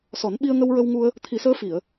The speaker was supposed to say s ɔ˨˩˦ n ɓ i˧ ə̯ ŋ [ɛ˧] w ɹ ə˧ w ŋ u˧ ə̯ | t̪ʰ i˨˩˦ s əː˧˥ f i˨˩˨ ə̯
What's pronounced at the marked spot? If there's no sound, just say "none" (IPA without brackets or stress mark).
ə˧